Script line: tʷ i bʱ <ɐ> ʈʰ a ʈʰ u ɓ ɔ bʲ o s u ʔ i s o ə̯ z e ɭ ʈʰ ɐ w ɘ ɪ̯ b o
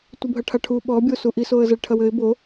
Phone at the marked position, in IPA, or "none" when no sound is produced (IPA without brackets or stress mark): ɐ